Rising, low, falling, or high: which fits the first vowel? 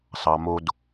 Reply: low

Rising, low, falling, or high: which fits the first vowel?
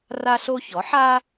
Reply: high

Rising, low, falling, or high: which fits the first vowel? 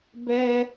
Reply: high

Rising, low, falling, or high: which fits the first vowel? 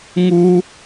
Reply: high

